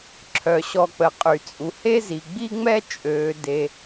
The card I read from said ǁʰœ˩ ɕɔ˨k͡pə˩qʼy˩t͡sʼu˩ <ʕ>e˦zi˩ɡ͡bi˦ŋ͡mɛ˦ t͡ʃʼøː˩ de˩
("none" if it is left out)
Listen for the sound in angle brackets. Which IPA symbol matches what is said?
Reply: h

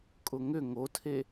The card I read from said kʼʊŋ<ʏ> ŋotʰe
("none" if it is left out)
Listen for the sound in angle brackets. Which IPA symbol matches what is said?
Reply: ʏ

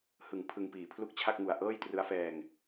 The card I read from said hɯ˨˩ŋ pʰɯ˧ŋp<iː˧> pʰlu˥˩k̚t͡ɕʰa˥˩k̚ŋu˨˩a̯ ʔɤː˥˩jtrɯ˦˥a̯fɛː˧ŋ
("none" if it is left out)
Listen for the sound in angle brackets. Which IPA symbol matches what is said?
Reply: iː˨˩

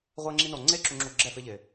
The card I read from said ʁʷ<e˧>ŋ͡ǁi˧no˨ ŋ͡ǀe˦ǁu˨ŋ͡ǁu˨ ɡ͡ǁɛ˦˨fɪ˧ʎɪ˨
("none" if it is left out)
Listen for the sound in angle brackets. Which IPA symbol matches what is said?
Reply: e˧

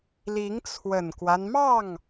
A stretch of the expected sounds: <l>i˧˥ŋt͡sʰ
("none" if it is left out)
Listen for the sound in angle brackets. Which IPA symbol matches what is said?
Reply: l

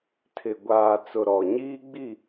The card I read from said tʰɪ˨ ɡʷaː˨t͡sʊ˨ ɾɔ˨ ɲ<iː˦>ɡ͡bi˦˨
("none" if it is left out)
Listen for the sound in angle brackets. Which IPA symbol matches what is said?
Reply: iː˦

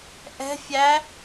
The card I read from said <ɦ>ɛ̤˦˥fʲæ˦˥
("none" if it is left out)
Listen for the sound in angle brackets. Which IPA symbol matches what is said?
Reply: ʔ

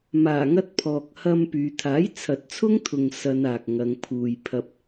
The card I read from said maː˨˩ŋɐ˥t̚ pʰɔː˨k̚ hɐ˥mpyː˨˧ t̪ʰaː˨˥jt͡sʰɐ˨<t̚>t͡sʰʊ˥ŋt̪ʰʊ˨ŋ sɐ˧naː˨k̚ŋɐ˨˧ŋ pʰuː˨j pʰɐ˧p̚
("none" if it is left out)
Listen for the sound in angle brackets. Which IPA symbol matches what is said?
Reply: t̚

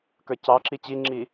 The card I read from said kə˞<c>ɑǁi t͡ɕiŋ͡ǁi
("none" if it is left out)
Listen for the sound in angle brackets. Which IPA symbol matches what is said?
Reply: c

